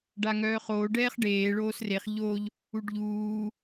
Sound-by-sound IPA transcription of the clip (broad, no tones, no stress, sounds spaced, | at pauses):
ɖ a ŋ œː χ oː ɖ ɛː χ ɖ eː ɭ oː s r e χ ʎ o ʎ | u ɖ ʎ uː